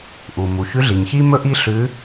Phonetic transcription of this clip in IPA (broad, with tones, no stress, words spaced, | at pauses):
ʔu˩ mu˩çʉ˧˥ɮi˩ɲçi˥ mɵ˥ʔi˥ ɬʉ˧˥